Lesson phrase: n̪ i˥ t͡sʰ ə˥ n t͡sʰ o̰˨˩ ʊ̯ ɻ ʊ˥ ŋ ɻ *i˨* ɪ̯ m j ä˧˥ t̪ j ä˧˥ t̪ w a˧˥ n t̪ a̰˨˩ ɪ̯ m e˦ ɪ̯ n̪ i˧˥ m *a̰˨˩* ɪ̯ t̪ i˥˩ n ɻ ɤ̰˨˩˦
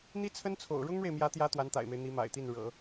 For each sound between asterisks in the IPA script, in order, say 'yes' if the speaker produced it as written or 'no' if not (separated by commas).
no, yes